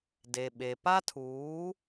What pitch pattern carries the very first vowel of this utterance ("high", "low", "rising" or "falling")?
low